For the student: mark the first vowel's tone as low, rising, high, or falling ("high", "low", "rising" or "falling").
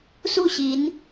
falling